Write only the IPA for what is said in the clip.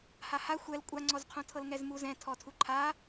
h a h a xʷ ɛ l kʷʼ a ŋ͡ǀ ɔ z qʰ õ tʰ ɤ l ŋ ɛ z m u z ɛ̃ tʰ ɔ tʰ u ǃʰ a

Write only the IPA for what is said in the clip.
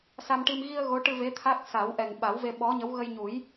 s a˧ m ʈ i˧ m ɣ i˧ ə̯ ɣ o˧˥ ʈ ɨ˧ v e˧˥ t̪ʰ a˦˥ k̚ s a˨˩˦ w ʔ ɛ˨˩ ŋ ɓ a˨˩˦ w v e˧ ɓ ɔ˧˥ ɲ ə˧˥ w ɣ ə˧ j ɲ u˨˩˦ j

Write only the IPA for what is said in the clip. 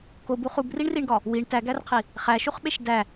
k o b u χ u b r i ɳ r i ɳ ɡ ɒ | w i ɳ t æ ɡ æ r qʰ i | χ æ ʃ u χ ɓ e ʃ d æ

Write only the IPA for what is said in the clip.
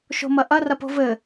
ʃ o̤ m ɐ ʔ ɐ r ɐ p o̤ v ɘ

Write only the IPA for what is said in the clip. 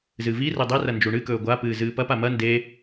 z ɨ v i r e dˤ e r ɐ n d͡ʒ u ɳ ɨ k ɵː ɡʷ a p ɨː z ɨː p ɐ p a m ɐ n d e

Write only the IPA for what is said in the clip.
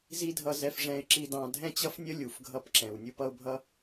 z i˦ dʱ ʌ˧ z ɛ˧ f ʐ ɛ̃˧ ɪ̯ ǁ i˧ d ɑ̃˧ dʱ ɛ̃˦ t͡ɕ ʌ˦ f nʲ ə˦ lʲ u˨ f ɡʱ ʌ˦ p ǁ ɛ̃˨ w nʲ u˧ p ʌ˧ ʊ̯ bʱ ʌ˦

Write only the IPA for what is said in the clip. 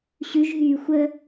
ɕ ʉ ʒ ɦ yː xʷ ə

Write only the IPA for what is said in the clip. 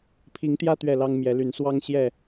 pʰ i˨˦ ŋ t̪ j ä˦ t̪ ɥ ɛ˥˨ l ɑ˦ ŋ m j ɛ˨˦ l y˨˦ n s w ɑ˦ ŋ ɕ j ɛ˥˨

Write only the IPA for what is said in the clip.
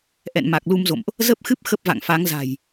ʔ ɛ̰˧˨ n m a˨˩ k̚ l u˧ m z o̰˧˨ m ʔ | z ə˦˥ p̚ x ɨ˦˥ p̚ x ə˦˥ p̚ v a̰˧˨ ŋ f a˨˦ ŋ z a̤˨˩ j

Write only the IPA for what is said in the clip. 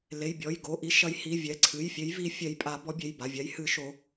l e˩˧˩ j bʲ ɔ˩˧˩ j ɡ o˩˧˩ ʔ i˨˦ ʃ ɐ˨˦ j h i˩˧˩ vʲ ɛ˩˧˩ ǀʰ ɨ˩˧˩ j fʲ e˨˦ j v i˨˦ fʲ ɛ˨˦ j pʼ a˨˦ b ɔ˨˦ bʲ e˩˧˩ j b a˩˧˩ vʲ a˨˦ j h ɨ˨˦ ʃ o˨˦

